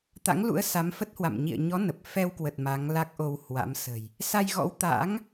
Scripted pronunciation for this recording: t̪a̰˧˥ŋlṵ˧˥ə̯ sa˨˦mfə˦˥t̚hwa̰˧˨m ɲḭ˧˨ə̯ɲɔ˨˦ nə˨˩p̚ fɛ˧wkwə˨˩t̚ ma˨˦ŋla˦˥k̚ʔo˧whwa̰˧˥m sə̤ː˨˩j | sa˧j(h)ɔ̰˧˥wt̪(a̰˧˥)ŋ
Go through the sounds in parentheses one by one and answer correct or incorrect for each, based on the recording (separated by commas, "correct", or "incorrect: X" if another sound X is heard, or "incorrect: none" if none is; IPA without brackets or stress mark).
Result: incorrect: ɣ, correct